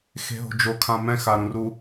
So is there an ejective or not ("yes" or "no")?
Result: no